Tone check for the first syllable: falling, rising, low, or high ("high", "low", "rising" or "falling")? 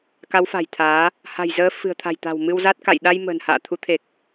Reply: rising